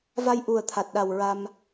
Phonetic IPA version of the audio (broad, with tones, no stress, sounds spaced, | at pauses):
v a˧ j ʔ u˨˩ ə̯ t̪ʰ a˨˩ t̚ ɗ a˨˩ w ɹ a˧ m